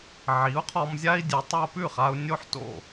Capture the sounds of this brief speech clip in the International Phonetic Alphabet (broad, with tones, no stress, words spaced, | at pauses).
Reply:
ʕi˩˥u̯qʰɔ˧mzʲa˥i̯dʲʉ˩˥ tˤo˧pʉ˥˩χa˧u̯ nʲo˥ħ to̰˥˩